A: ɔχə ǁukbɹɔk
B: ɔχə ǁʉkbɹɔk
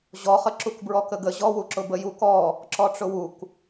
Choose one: A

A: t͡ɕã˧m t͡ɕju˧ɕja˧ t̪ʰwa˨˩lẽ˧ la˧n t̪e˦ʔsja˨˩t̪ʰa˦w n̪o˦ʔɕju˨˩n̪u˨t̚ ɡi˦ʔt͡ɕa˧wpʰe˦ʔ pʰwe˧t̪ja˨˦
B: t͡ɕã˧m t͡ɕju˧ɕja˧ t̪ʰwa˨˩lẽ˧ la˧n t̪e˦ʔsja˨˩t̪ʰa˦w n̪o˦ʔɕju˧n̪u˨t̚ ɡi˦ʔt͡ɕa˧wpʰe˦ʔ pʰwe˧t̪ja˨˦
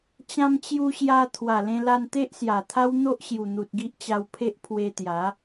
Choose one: A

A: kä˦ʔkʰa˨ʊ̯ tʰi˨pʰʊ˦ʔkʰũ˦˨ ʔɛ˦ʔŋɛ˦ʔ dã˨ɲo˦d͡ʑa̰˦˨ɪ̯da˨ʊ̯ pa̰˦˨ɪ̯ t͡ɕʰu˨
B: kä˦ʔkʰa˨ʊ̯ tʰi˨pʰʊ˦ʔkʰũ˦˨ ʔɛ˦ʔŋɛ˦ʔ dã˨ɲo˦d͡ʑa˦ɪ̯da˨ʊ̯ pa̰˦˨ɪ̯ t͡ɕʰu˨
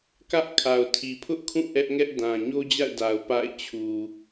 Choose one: A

